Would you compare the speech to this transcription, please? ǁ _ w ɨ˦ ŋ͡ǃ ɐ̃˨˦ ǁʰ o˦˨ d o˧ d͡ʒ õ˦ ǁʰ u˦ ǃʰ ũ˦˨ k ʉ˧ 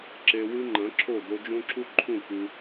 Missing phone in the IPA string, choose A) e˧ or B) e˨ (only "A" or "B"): A